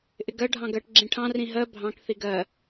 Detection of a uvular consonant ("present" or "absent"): absent